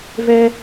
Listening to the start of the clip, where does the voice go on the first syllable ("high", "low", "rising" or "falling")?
high